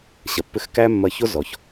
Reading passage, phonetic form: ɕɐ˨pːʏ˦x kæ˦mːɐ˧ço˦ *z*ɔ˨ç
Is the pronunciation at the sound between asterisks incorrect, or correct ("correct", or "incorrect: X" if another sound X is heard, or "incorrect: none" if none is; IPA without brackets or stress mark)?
correct